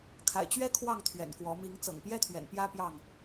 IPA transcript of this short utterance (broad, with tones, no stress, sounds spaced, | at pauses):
kʰ a̰˨˩ ɪ̯ t͡ɕ ɥ ɛ˦ kʰ w ɑ˥˨ ŋ t̪ʰ ɥ ɛ̰˨˩ n k w ɔ˨˦ m i˨˦ ŋ t͡s ɤ̰˨˩ ŋ p j ɛ˦ t̪ʰ ɥ ɛ̰˨˩ n p j ä˦ p j ɑ˥˨ ŋ